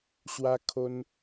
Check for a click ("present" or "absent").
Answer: absent